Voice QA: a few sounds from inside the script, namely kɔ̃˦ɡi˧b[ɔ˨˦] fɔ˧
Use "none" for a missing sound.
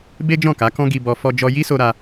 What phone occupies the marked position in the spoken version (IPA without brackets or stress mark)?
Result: ɔ˧